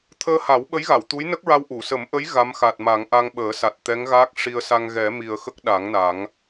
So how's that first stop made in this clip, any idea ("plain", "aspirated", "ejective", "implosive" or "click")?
aspirated